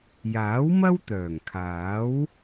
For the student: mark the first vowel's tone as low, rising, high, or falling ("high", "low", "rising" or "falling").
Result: rising